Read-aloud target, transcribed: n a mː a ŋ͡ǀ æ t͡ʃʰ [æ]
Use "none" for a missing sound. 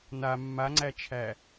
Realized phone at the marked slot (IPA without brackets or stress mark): æ